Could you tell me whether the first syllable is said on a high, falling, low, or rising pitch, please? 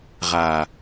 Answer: low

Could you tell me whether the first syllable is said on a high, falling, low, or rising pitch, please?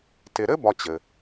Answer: low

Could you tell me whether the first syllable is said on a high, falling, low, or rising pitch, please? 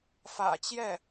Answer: low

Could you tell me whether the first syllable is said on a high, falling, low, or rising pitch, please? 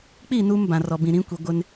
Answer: falling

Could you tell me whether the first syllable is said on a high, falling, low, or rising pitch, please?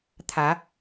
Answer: rising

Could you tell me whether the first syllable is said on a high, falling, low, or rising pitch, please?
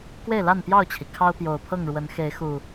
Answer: falling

